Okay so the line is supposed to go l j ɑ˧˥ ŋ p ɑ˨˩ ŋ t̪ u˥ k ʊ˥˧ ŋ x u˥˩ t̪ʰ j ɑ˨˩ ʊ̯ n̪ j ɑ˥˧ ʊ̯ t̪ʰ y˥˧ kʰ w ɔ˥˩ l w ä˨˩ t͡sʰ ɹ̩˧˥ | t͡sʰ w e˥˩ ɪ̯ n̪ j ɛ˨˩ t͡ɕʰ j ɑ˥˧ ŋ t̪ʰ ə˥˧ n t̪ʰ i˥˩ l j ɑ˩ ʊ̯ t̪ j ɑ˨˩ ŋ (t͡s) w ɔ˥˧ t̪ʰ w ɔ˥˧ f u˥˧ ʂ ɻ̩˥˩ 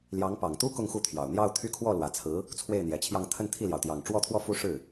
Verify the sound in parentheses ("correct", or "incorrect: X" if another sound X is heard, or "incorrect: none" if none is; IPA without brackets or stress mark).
incorrect: ʈ͡ʂ